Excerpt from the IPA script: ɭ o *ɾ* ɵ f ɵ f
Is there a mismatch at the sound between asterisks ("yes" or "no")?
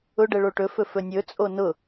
yes